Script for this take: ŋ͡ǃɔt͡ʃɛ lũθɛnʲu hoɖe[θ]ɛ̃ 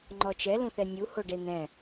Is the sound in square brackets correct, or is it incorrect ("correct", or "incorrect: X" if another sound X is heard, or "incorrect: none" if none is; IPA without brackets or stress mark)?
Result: incorrect: n̪